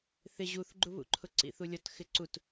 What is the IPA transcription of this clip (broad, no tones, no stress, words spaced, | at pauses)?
θɪ ʑuθɡ͡ǃuβṵǃʰʊ ǀḭθulʲɔt xɪǀut